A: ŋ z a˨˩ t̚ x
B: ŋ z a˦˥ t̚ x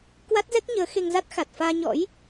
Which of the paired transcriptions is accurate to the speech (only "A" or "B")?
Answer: B